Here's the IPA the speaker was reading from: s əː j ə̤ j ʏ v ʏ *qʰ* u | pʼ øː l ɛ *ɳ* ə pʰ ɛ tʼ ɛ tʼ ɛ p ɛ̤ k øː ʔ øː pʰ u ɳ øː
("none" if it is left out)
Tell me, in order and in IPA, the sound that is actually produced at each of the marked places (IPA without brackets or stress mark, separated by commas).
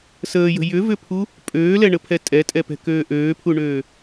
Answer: pʰ, ɳ